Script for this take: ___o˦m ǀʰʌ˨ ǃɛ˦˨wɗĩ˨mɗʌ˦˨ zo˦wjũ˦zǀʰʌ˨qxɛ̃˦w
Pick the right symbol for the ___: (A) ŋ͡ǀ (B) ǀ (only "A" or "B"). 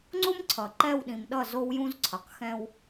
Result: A